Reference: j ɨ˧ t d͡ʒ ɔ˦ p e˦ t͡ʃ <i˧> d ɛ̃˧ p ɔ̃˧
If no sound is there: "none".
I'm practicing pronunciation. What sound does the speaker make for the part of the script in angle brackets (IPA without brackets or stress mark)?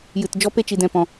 i˧